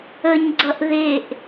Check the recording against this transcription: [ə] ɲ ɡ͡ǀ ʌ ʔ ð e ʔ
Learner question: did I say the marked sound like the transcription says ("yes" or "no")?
yes